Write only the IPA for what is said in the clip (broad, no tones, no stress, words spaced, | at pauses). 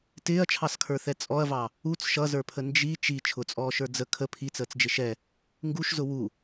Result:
tɪːɐ̯t͡ʃʰɑskʰə˞θɛ t͡sʼɔɐ̯vɑ | ut͡s ʃʌzə˞pʰə nd͡ʒi t͡ʃi t͡ʃʰʊt͡sʼɔːʃə˞ d͡zə kʰə pʰit͡səːt͡sd͡ʒɪ ʃɛ | ŋɡuʃzʊ wu